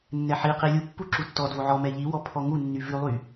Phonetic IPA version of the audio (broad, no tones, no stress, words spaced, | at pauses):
nːɛħiqi lʲupːu ǁutːɔdvo ʕɔ mɛʎiwɔ pʰɔŋunːy vʉlˠy